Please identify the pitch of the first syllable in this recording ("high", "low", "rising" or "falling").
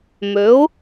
rising